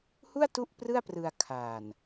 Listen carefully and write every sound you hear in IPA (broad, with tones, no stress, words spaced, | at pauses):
hu˥˩a̯ tu˥˩ʔprɯ˥˩a̯prɯ˧a̯ kʰaː˨˩n